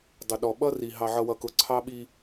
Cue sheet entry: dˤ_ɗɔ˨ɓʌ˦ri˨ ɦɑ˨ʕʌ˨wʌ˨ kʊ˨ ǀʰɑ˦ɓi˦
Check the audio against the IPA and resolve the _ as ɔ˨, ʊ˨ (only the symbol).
ʊ˨